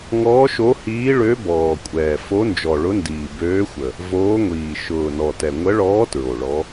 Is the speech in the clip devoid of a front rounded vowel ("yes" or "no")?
no